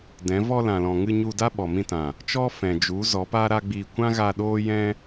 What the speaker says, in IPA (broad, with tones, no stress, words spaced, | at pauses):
dɛ̃˨˦ vɔ˧lã˨lɔ̃˨ŋɨ˧ ɲu˧da˦ ɓɔ˨mĩ˧tã˨ | t͡ʃɔ˦fɛ̃˨ d͡ʒu˨˦ zɔ˨˦pa˦ɾa˦ ɡ͡bi˧ kʷã˦ɣa˧ ɗoː˦jɛ̃˦